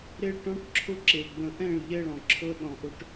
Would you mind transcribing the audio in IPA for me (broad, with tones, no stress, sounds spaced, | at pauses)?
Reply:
ɾ e˦ ɭ ʈ ɔ̃˦ ʈ ǁʰ ʊ˦ ǁ e˨ ɡ͡b ə̃˨ ʔ ɛ̃˦˨ ɭ ʎ ɛ˦ ɭ ɔ̃˨ ǁʰ ɤ˦ ɗ ɔ̃˨ ʔ ʊ˦ ʈ